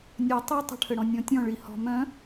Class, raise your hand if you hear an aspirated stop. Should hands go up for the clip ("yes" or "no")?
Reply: yes